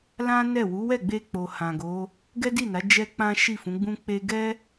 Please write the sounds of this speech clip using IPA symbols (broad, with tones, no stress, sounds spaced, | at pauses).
l ã˦ n ɛ˦˨ w u˨˦ w ɛ˦˨ ɡ͡b e˧ k͡p o˨ h ã˨ ɡ o˨˦ | ɡ ɛ˦ d i˦˨ n a˨˦ d͡ʒ ɛ˦ k͡p ã˦ ʃ i˦˨ f ũ˨˦ ɡ͡b ũ˦ k͡p e˦ ɡ ɛ˦